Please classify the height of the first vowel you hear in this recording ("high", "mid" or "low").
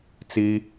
high